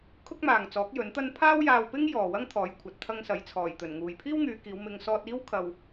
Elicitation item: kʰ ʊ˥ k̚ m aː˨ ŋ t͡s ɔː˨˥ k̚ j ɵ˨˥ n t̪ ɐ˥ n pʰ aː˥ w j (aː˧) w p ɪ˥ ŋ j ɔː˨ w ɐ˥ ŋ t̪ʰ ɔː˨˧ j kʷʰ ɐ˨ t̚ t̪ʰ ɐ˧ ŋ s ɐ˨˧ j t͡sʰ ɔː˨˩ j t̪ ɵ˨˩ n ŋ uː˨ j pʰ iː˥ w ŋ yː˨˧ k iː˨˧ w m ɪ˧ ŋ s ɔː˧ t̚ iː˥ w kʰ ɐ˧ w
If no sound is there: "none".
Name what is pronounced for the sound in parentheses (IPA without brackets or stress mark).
aː˧